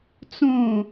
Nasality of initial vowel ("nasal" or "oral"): nasal